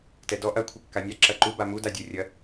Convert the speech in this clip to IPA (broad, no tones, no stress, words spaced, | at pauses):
tɛdɔ ʔɐ kʷʰɘkːanʲa ǁɐǃu bamu dadʲorʲɐ